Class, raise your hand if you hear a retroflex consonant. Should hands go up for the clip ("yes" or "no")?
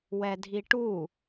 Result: yes